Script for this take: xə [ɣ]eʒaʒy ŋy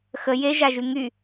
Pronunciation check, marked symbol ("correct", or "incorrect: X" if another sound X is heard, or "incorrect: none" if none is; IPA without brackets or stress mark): incorrect: j